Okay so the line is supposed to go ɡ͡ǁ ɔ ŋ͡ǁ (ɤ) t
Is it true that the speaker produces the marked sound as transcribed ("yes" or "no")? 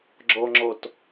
no